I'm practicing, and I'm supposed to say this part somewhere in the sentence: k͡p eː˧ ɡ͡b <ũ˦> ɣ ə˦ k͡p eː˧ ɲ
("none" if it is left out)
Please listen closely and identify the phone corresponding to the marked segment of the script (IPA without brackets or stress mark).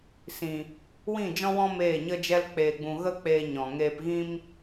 ũ˧